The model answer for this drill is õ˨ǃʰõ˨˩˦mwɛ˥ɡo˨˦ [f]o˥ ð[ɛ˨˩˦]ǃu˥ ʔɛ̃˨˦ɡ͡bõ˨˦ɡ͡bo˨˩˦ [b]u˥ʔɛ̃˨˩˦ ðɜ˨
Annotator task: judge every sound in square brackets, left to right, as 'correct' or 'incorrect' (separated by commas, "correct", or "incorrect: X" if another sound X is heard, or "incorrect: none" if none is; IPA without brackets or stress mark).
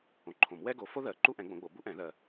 correct, incorrect: ɜ˨˩˦, correct